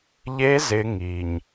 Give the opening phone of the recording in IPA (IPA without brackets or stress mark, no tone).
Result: ʎ